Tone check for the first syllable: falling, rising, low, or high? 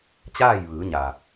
falling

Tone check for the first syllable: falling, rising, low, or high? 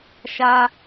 low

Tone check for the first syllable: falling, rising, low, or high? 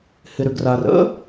low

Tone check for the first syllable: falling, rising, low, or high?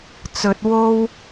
low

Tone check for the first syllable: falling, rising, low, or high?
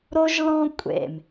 high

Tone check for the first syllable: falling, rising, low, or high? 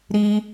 high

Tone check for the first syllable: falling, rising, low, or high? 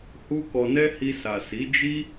high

